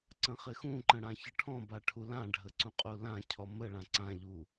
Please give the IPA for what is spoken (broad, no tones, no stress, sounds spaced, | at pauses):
ǀ ə̃ χ ɪ x ũ ǃ ə̃ ɽ ã ç ə ʈʰ ɔ̃ b a ʈʰ u l ã ɖʱ ə ǀ ũ qʼ u l ã cʰ ɔ m ə ɭ ã ǀ ã ʎ u